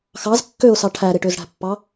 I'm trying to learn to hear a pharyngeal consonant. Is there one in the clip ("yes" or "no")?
no